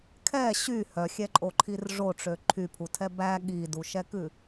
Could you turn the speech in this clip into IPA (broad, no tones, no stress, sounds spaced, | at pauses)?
kʰ ɛ ɕ y h œ xʲ ɛ ǃʼ o ǃʰ i r ʐ o ʈ͡ʂ ø ǃʰ y pʰ u tʰ ɛ b æ ɠ i d u ʃ ɛ k ʉ